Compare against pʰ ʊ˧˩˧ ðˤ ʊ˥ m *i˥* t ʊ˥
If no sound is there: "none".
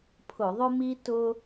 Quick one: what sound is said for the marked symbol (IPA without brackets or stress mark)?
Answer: i˥